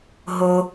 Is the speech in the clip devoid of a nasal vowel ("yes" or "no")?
yes